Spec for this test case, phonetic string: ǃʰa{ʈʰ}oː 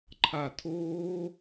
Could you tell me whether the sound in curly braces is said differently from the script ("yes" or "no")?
yes